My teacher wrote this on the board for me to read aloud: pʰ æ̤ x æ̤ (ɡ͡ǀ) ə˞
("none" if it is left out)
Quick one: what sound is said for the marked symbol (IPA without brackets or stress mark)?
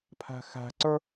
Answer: ǀ